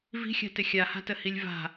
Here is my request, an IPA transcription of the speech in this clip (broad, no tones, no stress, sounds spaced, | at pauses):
v i̤ xʲ a̤ t ɪ xʲ a h a̤ t ə h i lʲ v a̤